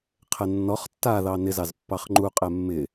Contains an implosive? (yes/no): no